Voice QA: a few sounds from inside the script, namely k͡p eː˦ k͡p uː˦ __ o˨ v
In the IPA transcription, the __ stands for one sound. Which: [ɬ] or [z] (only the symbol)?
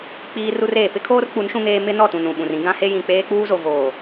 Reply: z